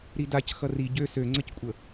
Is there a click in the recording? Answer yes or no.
yes